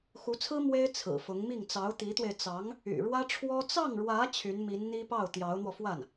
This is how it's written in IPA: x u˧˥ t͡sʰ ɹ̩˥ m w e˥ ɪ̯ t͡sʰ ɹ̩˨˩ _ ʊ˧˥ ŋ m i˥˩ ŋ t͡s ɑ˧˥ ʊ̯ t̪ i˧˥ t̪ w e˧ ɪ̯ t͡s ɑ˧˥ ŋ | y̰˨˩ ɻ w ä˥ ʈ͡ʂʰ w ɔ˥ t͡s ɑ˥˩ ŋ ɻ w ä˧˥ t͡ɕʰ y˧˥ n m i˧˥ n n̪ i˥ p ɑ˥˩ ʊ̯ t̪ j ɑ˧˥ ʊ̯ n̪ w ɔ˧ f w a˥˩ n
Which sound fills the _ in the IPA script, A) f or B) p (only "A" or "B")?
A